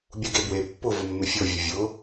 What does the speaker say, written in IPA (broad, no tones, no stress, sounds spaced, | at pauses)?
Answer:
bʲ u ɡ e b w e pː ʊ v ʊ mː ɪ fʲ o vʲ ʊ vʲ ʊ